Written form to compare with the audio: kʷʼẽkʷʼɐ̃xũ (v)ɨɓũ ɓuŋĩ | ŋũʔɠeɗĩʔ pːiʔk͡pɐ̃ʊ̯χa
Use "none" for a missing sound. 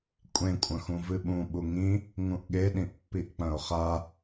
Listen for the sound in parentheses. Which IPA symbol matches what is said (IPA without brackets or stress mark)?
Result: v